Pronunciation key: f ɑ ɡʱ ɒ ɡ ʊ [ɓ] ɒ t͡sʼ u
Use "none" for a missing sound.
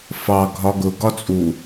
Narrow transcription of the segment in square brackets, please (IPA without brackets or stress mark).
ɡ